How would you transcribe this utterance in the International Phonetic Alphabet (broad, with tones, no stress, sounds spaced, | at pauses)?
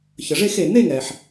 ç ə˩ ʐ e˥˧ x e˩ n̪ e˥˧ ŋ ɛ˩ ħ